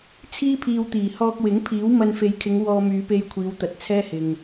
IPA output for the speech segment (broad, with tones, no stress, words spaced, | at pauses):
t͡sʰiː˥pʰiː˧wt̪iː˨˩ hɔː˧k̚wɪ˨˥ŋpʰiː˨˥w mɐ˧nfe˨˧jkʰɪ˨˧ŋ wɔː˧myː˨˧pe˧j kʷʰiː˨˧wt̪ɐ˨˥t̚ t͡sʰɛː˥hɪ˨ŋ